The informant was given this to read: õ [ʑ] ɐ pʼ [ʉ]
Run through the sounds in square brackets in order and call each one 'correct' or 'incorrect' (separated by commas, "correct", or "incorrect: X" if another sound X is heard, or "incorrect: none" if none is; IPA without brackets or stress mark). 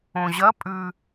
correct, correct